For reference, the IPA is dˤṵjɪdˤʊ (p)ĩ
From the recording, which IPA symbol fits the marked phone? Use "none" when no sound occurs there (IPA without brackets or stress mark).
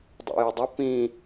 p